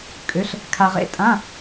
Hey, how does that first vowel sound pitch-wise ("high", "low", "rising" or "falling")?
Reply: rising